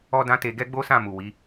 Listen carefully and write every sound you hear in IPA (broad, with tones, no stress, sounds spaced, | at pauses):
ɔ˧ d ã˧ t e˧ ɡ ɛ˦ ɡ͡b o˦ s ã˦˨ m u˨ w i˨˦